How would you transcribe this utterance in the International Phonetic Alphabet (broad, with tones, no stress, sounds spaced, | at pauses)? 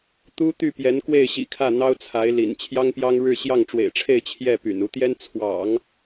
t̪ u˥ t̪ y˥˩ p j ɛ˧˥ n k w e˥˩ ɪ̯ ɕ ḭ˨˩ kʰ ä˥˩ n̪ ɑ˥ ʊ̯ t͡sʰ a˧˥ ɪ̯ l ḭ˨˩ n t͡ɕʰ j ɑ˥ ŋ p j ɑ˥ ŋ ɻ ɻ̩˥˧ ɕ j ɑ˥˩ ŋ ʈ͡ʂ w ḛ˨˩ ɪ̯ ʈ͡ʂʰ e˥˧ ɪ̯ t͡ɕʰ j ɛ˥˩ p y̰˨˩ n u˧˥ t̪ j ɛ˥ n t͡sʰ w ɑ̰˨˩˦ ŋ